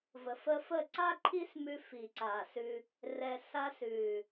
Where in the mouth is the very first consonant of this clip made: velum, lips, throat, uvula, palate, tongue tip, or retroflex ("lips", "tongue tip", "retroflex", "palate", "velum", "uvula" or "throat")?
lips